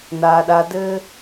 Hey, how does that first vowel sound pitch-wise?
high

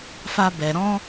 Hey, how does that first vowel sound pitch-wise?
high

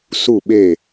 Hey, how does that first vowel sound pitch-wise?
falling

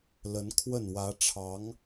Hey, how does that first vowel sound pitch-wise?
rising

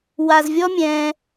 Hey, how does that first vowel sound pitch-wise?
low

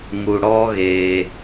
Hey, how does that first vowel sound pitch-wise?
high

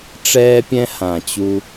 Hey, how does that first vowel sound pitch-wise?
high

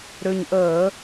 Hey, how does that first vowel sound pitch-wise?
low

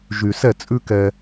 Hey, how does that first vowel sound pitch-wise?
low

